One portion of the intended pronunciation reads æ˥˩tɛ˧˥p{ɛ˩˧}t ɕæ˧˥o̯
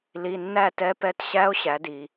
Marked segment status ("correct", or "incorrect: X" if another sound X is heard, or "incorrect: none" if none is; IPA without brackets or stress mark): incorrect: ɛ˧˥